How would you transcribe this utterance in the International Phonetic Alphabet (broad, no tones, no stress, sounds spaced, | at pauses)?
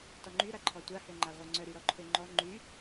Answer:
t ɔ ŋ͡ǃ y ɾ a ǃʰ ɔ tʷ a h ø ŋ͡ǃ a ʁʷ œ ŋ͡ǀ œ ɾ y ɾ ɔ ǃʰ ø ŋ͡ǃ ɔ ŋ͡ǃ y